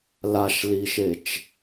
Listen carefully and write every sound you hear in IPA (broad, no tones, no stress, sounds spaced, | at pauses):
l a ʃ l i ʃ e t͡ʃ